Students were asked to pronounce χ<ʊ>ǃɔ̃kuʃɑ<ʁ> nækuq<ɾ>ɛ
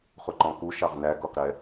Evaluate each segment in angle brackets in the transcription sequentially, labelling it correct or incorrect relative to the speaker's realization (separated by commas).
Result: correct, correct, correct